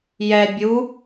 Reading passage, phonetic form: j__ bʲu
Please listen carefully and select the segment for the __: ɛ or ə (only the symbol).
ɛ